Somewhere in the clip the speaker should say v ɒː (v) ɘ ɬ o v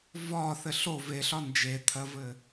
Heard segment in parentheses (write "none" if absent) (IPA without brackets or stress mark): θ